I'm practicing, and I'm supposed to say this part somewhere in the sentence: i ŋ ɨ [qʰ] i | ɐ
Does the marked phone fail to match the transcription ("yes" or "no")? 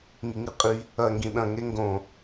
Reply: yes